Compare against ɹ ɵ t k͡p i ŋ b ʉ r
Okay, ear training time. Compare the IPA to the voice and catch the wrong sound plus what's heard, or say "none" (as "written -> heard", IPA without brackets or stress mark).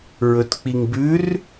none